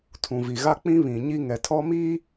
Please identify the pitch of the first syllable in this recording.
low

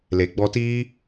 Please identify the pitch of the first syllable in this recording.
low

